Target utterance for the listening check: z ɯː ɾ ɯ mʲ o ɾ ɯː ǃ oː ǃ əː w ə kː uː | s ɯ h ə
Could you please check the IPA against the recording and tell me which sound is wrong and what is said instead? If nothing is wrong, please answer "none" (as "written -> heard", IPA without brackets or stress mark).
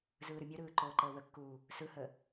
none